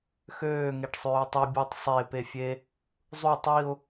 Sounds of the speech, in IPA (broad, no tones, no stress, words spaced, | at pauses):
xøː ŋeʈsˤøːtˤi bʲutˤ sˤe pefʲe | zˤu tˤiʊ̯